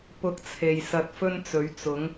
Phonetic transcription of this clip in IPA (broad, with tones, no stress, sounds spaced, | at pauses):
p ʊ˧ k̚ t͡sʰ e˨ j s ɐ˧ t̚ f ɵ˥ n t͡s ɵ˨˥ ɥ t͡s ʊ˨˥ ŋ